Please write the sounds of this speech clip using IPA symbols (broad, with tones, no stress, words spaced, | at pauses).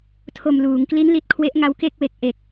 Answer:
tʰo˨˩m luː˩˦ŋkli˦˥nli˨˩t̚ kʰwe˦˥ʔŋa˦˥wke˥˩k̚we˨˩k̚ ʔe˨˩k̚